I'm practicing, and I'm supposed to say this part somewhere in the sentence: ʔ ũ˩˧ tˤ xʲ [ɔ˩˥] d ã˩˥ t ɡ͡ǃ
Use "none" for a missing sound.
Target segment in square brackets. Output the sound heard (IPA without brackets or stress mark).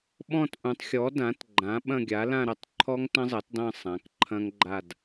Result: ɔ˩˥